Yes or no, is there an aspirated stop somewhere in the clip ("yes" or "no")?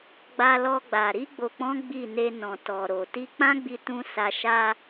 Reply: no